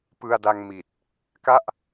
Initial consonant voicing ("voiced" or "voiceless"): voiceless